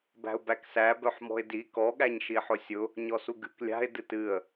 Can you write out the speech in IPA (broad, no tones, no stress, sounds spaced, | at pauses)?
b æ̤ ʊ̯ b æ k s æ b œ ħ m ɔ̤ ɪ̯ d i k ɔ ɠ æ ɲ ʃ i ħ ʊ sʲ ʊ | ɲ ɔ s u ɡ ɨ k lʲ a̤ ɪ̯ d ɨ t ɨ ə̯